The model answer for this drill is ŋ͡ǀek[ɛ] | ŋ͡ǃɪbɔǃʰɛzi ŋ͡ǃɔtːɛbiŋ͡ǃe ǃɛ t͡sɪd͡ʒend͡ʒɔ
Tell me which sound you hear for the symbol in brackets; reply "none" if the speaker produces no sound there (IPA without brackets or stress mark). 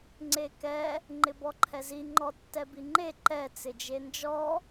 ɛ